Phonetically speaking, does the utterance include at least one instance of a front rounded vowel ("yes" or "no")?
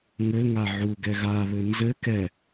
no